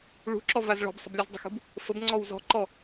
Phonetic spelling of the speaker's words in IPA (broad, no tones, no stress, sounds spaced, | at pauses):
ɭ ṳ ǁ ɔ v a z ɭ ɔ̤ b sˤ ə̤ b lʲ u z dˤ ə̤ x ṳ b | f ə b ŋ͡ǀ ɔ w z ɔ̤ ǃ ɔ